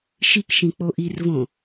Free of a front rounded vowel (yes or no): yes